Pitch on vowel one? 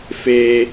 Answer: high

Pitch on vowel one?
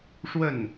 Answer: falling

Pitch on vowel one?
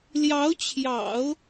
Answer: rising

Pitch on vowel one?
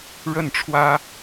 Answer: falling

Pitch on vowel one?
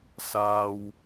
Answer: low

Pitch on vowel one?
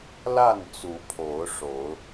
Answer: falling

